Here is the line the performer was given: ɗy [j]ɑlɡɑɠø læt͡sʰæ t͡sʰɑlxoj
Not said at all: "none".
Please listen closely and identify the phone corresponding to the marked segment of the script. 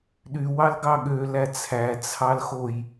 w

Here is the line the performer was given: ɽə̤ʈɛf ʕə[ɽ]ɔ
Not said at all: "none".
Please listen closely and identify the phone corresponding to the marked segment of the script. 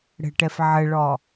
ɭ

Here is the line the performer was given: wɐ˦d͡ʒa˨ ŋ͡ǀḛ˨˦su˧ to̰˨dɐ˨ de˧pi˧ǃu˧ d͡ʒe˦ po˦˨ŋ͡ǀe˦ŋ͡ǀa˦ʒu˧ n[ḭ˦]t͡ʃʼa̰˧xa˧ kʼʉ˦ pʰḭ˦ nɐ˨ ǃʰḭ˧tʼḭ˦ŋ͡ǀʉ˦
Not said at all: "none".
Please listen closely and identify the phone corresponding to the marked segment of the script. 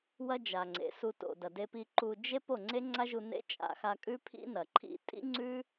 ḛ˦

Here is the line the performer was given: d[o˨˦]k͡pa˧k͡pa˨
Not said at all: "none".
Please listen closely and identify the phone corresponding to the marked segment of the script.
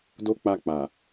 o˦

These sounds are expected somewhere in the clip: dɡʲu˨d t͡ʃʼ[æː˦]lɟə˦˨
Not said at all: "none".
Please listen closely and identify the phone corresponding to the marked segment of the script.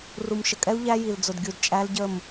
æ˦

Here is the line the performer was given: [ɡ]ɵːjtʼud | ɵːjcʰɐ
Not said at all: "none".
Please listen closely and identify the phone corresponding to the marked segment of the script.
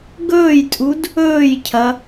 ɡ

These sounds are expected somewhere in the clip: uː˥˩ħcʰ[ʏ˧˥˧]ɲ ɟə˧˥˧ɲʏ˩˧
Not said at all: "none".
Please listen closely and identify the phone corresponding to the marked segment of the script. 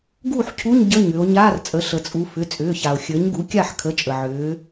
u˧˥˧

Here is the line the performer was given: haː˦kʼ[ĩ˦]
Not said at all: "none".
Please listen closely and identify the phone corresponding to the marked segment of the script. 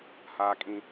ĩ˦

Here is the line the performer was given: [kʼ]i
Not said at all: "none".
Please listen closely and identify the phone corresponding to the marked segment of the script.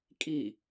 kʼ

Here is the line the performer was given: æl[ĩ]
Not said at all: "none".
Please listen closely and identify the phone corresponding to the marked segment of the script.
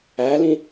ĩ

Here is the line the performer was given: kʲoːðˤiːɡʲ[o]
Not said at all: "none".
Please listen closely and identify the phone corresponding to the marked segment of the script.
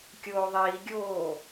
oː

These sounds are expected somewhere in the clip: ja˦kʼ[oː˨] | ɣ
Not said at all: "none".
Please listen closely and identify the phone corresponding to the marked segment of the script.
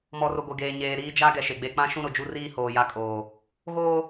oː˨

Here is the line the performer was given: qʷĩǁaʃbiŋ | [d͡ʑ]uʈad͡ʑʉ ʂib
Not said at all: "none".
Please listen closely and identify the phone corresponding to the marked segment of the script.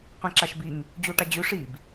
d͡ʑ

